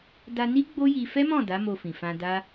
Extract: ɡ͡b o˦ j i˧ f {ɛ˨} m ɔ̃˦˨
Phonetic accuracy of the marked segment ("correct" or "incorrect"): incorrect